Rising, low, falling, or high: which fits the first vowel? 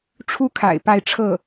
high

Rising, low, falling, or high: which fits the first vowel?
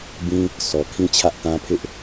high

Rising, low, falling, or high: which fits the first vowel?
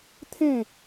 falling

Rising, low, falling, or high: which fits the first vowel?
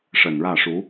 low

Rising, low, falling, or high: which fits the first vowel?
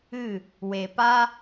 falling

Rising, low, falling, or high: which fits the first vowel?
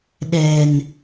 low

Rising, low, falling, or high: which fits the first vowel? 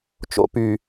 low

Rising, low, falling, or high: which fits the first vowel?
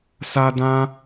high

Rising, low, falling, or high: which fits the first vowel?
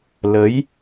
rising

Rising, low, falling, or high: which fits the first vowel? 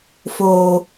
low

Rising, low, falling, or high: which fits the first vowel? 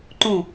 falling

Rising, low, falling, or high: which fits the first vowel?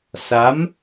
rising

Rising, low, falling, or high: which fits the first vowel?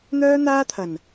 high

